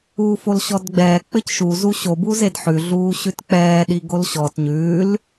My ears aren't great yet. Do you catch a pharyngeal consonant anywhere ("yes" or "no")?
yes